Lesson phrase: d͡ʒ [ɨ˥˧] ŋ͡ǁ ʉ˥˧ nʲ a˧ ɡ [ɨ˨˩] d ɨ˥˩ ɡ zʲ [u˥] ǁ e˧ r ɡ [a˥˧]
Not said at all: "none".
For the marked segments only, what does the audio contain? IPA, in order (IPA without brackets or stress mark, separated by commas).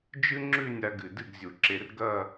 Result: ɨ˥, ɨ˨˩, u˨˩, ɐ˥˧